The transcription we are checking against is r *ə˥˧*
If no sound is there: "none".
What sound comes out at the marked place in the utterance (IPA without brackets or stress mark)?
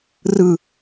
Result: ɯ˥˧